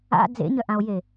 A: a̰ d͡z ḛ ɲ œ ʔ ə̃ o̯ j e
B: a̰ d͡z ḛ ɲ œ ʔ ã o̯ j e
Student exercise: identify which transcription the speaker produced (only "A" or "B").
B